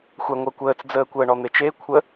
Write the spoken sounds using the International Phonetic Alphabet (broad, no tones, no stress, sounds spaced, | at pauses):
xʷ æ ŋʷ əː kʷ əː t͡s d͡z əː kʷ əː ɳ ɔ n̪ e t͡ʃ e kʷʰ ə